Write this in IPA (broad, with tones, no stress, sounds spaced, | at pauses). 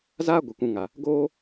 z aː˦ ɡʷ ɨ˨ kʷ ũ˧ ŋ a˨ | ɡ oː˦